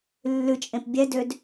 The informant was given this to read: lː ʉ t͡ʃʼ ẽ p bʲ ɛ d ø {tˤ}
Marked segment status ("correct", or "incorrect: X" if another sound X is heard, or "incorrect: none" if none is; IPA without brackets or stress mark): incorrect: d